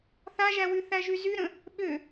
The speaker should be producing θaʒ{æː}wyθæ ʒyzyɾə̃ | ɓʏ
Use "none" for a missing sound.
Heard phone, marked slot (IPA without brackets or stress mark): æ